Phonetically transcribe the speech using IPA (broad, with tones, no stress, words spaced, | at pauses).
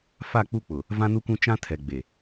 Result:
fa˦˨k͡pu˦k͡pʊ˨ | vã˦nu˦kũ˦ t͡ʃã˦tʰɛ˨ ɡ͡be˨